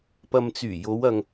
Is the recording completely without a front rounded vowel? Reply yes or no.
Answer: no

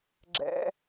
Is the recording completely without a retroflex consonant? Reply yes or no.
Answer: yes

